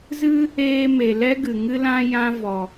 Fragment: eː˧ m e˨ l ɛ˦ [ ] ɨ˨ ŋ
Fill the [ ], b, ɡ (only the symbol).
ɡ